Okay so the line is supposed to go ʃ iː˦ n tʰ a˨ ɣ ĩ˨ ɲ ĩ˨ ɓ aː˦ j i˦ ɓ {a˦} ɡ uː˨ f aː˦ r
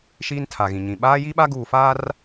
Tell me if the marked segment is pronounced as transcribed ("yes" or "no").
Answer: yes